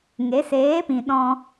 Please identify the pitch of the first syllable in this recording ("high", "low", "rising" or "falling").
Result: rising